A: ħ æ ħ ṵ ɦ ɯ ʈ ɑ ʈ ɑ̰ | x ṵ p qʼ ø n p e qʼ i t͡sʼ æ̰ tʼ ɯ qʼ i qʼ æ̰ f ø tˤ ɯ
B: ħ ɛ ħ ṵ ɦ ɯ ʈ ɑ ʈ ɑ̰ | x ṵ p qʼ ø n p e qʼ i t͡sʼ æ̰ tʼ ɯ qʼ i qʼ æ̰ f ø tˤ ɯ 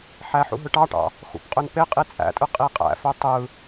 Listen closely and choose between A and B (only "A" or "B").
A